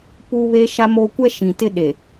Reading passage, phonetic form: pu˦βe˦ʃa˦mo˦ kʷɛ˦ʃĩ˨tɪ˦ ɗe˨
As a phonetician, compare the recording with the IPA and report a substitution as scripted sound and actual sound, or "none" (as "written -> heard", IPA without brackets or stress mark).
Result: none